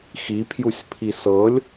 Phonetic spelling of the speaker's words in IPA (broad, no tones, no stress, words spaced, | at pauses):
xipʰjusʲpʰi sɤlʲ